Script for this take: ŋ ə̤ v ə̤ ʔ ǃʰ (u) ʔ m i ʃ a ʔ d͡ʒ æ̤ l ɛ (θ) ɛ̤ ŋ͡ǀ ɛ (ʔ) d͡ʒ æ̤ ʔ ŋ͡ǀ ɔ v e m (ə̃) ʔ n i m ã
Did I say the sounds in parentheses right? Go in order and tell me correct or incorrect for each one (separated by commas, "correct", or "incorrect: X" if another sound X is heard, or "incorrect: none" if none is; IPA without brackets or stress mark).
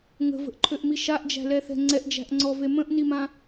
incorrect: ø, correct, correct, correct